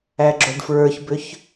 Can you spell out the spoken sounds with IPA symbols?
æ ɡ͡ǁ o ɖ f ɹ ə˞ ç b ʏ ç

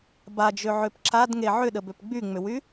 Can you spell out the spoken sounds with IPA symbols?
b a d͡ʒ ø ʕ ø p ǁ a d ŋ e ʕ ʏ ɗ ə b ø p ɡ͡b y ŋ͡m ʏ w y

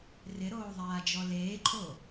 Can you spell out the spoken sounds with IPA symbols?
r ɪ ɾ oː ðˤ aː d͡ʒ ɔ l eː ǃʼ o

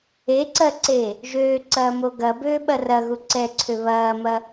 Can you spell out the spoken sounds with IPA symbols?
e ǀ ɜ ǀ e | ʒ øː ǀ ɐː m o ɡ ɐ b øː ɓ ɐ r ɐ ɣ u ǀ ɛ ǀʰ ø β ɐː m ɐ

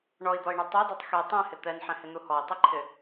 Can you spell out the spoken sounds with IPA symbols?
ɳ ɔ i̯ d̪ ɔ i̯ ɳ ɛ tˤ o d o tˤ x e tˤ ɛ̃ h ɪ t̪ ɛ n ħ ɛ̃ h ɪ n̪ u h ɔ i̯ tˤ ʊ ǃʰ ɪ

